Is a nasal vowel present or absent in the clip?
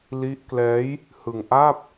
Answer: absent